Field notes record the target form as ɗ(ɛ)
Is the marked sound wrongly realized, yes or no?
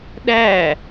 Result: yes